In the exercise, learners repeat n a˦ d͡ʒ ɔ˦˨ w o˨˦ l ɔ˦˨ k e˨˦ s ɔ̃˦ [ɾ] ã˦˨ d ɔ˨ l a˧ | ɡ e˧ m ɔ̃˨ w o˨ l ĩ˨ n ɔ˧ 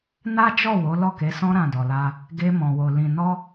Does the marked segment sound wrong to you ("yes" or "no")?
no